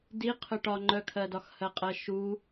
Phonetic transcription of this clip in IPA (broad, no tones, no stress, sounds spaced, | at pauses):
d i qʰ œ ʈ ɒ ŋ͡ǃ œ kʰ ɜ d ɒ x h ɜ qʼ ɜ ʃ u